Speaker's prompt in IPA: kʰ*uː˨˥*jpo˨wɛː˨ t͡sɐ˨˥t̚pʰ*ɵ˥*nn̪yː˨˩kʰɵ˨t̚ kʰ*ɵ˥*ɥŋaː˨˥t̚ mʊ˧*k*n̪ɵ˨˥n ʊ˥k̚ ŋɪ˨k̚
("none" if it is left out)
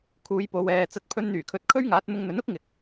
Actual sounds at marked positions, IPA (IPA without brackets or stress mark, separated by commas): uː˨˧, ɵ˧, ɵ˥, ŋ